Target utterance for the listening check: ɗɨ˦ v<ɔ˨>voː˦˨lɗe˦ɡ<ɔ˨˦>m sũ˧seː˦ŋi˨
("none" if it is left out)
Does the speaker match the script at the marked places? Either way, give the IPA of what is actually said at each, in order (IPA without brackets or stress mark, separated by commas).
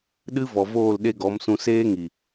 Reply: ɔ˨, ɔ˨˦